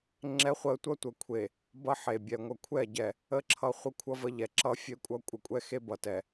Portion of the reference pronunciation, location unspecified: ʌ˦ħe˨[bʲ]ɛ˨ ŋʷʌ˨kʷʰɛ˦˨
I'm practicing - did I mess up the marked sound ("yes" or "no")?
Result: no